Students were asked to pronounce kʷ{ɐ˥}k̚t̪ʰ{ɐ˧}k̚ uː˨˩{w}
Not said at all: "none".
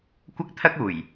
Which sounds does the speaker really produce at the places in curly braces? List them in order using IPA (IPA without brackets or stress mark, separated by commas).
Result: ɐ˥, ɐ˥, j